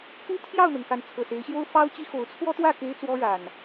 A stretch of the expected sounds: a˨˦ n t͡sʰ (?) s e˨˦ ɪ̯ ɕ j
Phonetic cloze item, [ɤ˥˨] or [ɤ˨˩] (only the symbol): ɤ˨˩